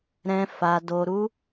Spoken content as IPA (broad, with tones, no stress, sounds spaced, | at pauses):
ɾ ɛ̃˧ f a˧ d o˧ ɾ u˦